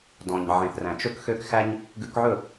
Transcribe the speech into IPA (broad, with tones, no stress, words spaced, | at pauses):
dɔ̃˨˩ɲʕẽ˨˩θræ̃˨˩ t͡ʃɵ˥kxø˥kxæ˥ɲ | ɡʉ˧kʕɵ˥˩